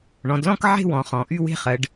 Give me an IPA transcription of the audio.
ɳɔ̃˩˧dlɔ̃˥˧k ʕe̤˥˧wɔ̃˩˧ χɔ̃˩˧ ʔy˥˧we̤˥˧χɜ˩˧ɖ

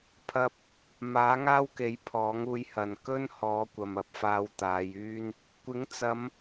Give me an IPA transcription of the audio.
pʰɐ˧p̚ | maː˨˥ŋaː˥wke˨˥j pʰɔː˨˥ŋuː˧jhɐ˨n kɵ˥nhɔː˨˧ kʷɐ˨mɐ˨p̚faː˧w t̪aː˨˧jyː˥n | kʷɪ˨˥ŋt͡sɐ˨˧m

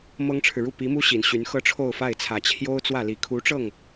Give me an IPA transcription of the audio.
mɤ˥ŋʈ͡ʂʰɻ̩˨ ɻu˥˩pi˧˥mu˥ ɕi˨˩nɕy˧˥n xɤ˥ʈ͡ʂʰo˥˧ʊ̯fa˥˩ɪ̯t͡sʰä˨˩ t͡ɕʰjo˥ʊ̯t͡swä˥˩li˨˩ kʰu˧˥ʈ͡ʂɤ˥˩ŋ

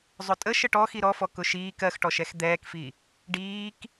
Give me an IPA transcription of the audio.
zˤʊtʼə ʃəʈɔ xiɾɔfɔ kʊʃiːk ɜxʈɔʃɛx d̪ɛːkfi | ɖiːk

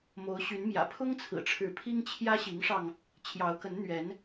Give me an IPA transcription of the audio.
mo˨˦ʊ̯ɕy˨˦nmjä̰˨˩ pʰʊ˦ŋ t͡sʰɹ̩˨˩ʈ͡ʂʰɻ̩˨˦pʰi˦ŋ t͡ɕʰjä˦ɕi˨˦ŋʂɑ˧ŋ | t͡ɕʰjɑ˨˦ʊ̯kə˨˦nn̪ɥɛ˨˦n

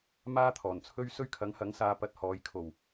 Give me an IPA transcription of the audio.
maː˥t̪ʰɔː˨˩nt͡sʰɵ˥ɥ sɵ˥ɥkʰɐ˨˥ŋhɐ˨˥ŋsaː˧ pɐ˧t̚hɔː˨˧jkʰo˨˩w

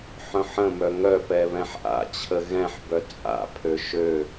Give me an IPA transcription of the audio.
ħœ̃ħə̃mœ ŋœpɛ βɛ̃ħʔa̰t͡ɕʰə ɣɛ̃ħbœ t͡sʼa̰pʰø ʃø

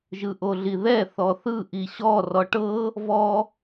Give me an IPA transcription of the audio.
ʒɯʔoɮiðɛ θɔθɯ ʔiɕɔ rɔʈɤ | vɔ

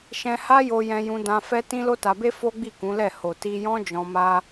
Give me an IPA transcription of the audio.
ʃɛ̃˧ ha˦jo˧ jɛ̃˧jũ˧dã˧ fɛ˦ tĩ˦lo˦ta˧be˦ fo˦ɡ͡bi˦˨kũ˨˦lɛ˦˨ ho˨ti˧jɔ̃˦ d͡ʒɔ̃˧ma˦

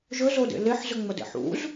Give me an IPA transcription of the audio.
ʒɵzodḛ leħzɵŋ͡mɐdḛ ħṵz

